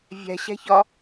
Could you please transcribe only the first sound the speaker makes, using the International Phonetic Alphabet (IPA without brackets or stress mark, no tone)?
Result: vʲ